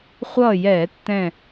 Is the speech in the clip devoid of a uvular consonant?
no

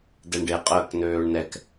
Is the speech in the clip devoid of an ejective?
no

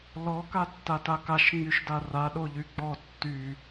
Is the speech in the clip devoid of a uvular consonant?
yes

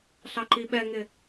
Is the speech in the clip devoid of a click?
no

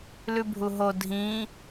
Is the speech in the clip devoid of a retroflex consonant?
yes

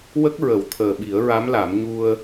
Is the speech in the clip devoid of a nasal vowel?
yes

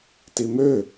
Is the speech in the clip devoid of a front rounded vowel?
no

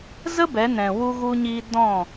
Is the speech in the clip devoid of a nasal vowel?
no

